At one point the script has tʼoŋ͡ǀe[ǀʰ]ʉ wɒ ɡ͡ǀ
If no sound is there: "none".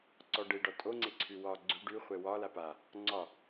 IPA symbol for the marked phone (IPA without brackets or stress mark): ǀʰ